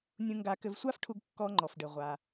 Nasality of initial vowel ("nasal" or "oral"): nasal